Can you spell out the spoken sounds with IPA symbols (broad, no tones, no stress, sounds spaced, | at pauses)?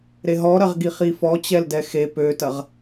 ɾ e ɦ ɔ ɾ ɐ ʁ ɡ i χ i f ɔ t͡ɕ ɛ l d ɛ x e p ø t ɐ ʁ